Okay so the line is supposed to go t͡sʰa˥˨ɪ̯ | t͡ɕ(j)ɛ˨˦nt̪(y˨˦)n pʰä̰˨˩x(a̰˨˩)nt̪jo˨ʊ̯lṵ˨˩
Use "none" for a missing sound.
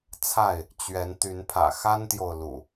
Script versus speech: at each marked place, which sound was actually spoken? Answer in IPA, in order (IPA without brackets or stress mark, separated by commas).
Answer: ɥ, y˨˦, a˦